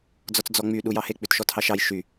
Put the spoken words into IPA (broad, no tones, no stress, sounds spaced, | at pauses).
d͡z ɔ t͡s d͡z ɔ ŋ͡m y ɗ u j ɑ h e k͡p ʉ t ʃ ɔ t h ɑ ʃ ɑ j ʃ y